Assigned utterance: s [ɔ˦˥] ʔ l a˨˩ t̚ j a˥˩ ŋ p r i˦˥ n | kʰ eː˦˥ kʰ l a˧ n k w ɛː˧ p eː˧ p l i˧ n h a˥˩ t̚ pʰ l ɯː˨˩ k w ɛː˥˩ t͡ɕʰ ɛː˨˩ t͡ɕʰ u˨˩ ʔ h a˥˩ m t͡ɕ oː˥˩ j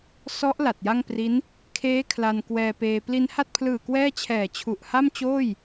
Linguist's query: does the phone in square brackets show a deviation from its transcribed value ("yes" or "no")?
no